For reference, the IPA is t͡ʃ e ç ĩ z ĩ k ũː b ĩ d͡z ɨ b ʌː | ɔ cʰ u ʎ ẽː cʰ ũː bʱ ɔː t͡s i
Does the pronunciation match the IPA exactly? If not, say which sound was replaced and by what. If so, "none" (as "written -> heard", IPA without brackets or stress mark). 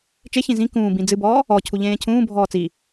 ʌː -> ɔː